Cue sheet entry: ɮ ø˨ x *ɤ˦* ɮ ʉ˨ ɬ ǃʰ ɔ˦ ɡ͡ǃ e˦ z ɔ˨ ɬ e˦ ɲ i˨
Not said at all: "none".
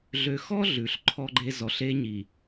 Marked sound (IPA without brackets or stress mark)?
ɔ˦